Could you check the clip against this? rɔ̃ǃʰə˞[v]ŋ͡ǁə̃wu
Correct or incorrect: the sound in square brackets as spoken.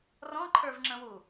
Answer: correct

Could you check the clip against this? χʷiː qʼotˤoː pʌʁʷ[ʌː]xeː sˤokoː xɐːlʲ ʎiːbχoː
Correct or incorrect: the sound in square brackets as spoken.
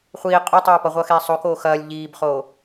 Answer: correct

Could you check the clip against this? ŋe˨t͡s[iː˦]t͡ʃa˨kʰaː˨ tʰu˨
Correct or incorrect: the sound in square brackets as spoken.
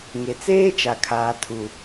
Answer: incorrect: eː˦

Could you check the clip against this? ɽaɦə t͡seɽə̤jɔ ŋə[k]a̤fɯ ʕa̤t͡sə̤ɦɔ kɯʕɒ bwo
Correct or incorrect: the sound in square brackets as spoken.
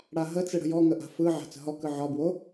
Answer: incorrect: ʔ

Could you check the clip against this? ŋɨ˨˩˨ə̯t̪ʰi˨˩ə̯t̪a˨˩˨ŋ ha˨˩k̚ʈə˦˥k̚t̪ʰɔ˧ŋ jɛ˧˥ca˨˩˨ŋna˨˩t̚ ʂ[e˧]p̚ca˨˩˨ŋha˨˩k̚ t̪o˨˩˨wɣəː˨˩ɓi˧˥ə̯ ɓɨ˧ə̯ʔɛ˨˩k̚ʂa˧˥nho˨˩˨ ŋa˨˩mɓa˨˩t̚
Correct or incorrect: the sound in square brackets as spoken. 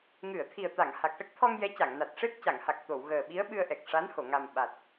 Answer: incorrect: e˦˥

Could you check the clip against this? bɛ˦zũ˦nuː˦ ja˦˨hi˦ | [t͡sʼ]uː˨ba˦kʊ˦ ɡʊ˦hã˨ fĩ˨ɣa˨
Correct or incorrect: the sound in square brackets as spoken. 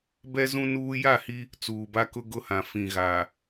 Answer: incorrect: t͡s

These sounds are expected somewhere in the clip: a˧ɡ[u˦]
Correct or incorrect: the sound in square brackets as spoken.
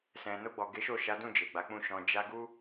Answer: correct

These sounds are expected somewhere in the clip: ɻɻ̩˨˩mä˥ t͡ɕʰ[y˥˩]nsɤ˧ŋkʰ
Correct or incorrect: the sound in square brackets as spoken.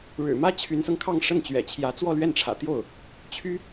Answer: incorrect: y˧˥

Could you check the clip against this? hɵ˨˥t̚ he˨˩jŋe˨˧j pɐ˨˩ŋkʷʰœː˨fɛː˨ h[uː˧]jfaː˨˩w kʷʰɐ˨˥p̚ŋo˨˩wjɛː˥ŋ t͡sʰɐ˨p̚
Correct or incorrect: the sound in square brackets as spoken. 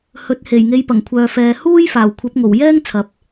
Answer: incorrect: uː˥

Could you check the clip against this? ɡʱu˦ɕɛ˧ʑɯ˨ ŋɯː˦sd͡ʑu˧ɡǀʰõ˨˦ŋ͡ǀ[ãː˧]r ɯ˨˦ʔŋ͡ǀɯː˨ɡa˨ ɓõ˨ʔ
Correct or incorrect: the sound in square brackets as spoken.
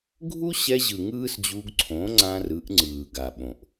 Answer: correct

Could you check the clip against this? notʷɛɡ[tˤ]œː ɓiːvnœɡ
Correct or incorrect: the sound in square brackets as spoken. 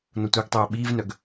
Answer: correct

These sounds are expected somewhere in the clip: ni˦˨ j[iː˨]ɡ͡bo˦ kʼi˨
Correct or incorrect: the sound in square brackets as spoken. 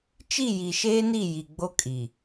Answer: incorrect: i˨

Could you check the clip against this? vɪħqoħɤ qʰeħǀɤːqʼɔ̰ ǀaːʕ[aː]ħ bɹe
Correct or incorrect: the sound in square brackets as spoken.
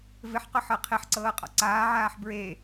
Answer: correct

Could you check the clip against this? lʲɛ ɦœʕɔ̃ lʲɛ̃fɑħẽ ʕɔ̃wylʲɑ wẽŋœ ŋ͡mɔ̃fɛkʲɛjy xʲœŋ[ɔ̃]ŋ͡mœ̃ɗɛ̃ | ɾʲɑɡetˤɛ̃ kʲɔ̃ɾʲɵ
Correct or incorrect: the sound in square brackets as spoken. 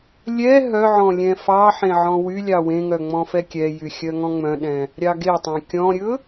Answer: correct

